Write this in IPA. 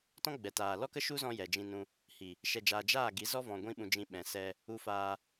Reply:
t ɔ̃˦ ɡ͡b ɛ˨ t aː˨ l ɔ˦ k ə˦ ʃ u˦ z ɔ̃˧ j ɛ˨ d͡ʒ ĩ˧ n ũ˧ | h i˨ | ʃ ɛ˧ d͡ʒ aː˧ d͡ʒ aː˦˨ ɡ i˨˦ z ɔ˦ v ɔ̃˧ ɡʷ ĩ˦ ɓ ũ˧ d͡ʒ ĩ˧ ɓ ɛ̃˨ s ɛ˧ | u˧ f aː˧

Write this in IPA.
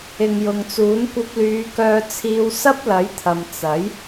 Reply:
ɪ˨ ŋ j ʊ˨ ŋ t͡s uː˨˥ n kʷ ɐ˧ p̚ l yː˨˧ k œː˧ t͡sʰ iː˧ w s ɐ˥ p̚ l ɐ˨˥ j t̪ʰ ɐ˨ m t͡s ɐ˨˥ j

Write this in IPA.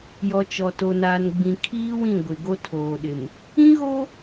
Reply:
j ɔ˨ t͡ʃ ɔ˨ t o˨ n aː˨ n ɡ͡b ĩ˨ kʰ iː˦ w ĩ˦˨ ɡʷ ɪ˨ ɡ o˦ tʰ oː˨ ɗ ɪ˨ m | ĩ˦ ɣ o˦

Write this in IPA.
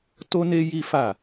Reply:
t o˦ n e˦ j i˦ f a˦˨

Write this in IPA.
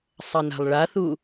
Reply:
sˤ ɐ n a̤ lˠ ɭ a θ u

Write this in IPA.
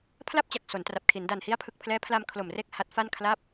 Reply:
pʰ l a˥˩ p̚ t͡ɕ a˨˩ k̚ s o˩˦ n t r a˨˩ p̚ kʰ i˩˦ n d a˨˩ n h i˦˥ a̯ pʰ ɯ˨˩ k̚ pʰ l ɛː˦˥ pʰ l a˧ m kʰ l o˨˩ m r e˥˩ k̚ h a˦˥ t̚ f a˥˩ n kʰ l a˦˥ p̚

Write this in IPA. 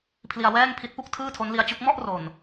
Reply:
pʰ l i˧ a̯ w ɛː˥˩ ŋ pʰ i˦˥ t̚ p u˥˩ k̚ tʰ ɯː˥˩ tʰ o˦˥ n l i˦˥ a̯ t͡ɕ u˦˥ k̚ m ɔ˥˩ ʔ r o˨˩ n

